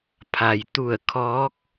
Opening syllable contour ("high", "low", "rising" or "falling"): low